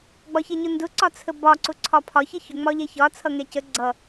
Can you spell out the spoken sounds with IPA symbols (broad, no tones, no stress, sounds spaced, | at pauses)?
ɡ͡b ɒ ç ɛ ɲ ʊ n d ʊ ǀ ɒ t͡sʰ ə b ɒ ǀ ʊ ǀʰ ɒ pʰ ɒ ç ʌ ç ʊ ŋ͡m ɒ ʎ ɛ ç ɒ t͡sʰ ʌ ŋ ɛ c ə ɡ͡ǀ ʌ